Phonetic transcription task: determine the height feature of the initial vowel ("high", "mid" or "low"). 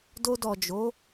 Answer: mid